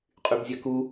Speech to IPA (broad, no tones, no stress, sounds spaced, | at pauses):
qʼ y b zʲ ɐ k u